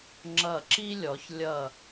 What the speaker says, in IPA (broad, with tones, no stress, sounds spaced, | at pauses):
ŋ͡ǁ ʌ˧˩ ǁ i˥ lʲ ɔ˩˧ ç lʲ ʌ˧˩